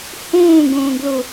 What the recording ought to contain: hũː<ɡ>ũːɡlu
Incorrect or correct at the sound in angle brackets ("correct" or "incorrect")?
correct